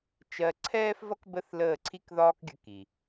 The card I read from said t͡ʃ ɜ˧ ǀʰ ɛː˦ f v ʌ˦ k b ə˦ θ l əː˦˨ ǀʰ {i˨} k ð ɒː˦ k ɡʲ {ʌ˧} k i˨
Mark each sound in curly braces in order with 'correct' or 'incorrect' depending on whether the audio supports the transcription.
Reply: incorrect: i˦, incorrect: ə˧

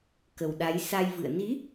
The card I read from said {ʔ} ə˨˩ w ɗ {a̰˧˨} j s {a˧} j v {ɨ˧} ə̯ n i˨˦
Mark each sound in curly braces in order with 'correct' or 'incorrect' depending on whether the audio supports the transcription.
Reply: incorrect: k, incorrect: a˨˦, correct, incorrect: ɨ̰˧˨

